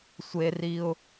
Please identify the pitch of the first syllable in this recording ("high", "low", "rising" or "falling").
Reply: high